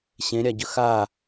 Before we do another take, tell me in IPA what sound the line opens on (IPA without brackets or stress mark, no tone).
ɕ